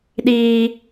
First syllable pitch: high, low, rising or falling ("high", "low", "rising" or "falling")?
high